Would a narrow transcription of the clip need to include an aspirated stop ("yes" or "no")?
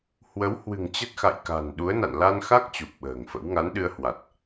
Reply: no